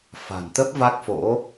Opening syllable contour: low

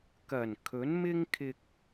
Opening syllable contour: low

